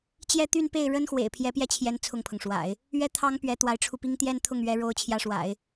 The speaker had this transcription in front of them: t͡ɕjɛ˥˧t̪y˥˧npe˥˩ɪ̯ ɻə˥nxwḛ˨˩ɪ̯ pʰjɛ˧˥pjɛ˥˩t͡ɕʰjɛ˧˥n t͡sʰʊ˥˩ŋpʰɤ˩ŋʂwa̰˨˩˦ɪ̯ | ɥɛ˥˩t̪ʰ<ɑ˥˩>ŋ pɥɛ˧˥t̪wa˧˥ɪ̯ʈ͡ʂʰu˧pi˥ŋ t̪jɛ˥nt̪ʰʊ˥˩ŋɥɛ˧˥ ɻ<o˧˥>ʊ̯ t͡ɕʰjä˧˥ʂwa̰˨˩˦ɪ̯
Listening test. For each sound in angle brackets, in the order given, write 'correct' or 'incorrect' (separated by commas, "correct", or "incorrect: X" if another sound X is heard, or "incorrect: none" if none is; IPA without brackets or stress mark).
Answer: incorrect: ɑ˥, correct